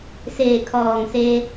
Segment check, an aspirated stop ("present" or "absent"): present